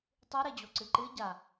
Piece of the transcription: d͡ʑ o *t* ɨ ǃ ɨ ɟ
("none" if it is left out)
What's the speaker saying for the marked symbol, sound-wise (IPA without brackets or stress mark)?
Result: ǀ